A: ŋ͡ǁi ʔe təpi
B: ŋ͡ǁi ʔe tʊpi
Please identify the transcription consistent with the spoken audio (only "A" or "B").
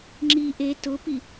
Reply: B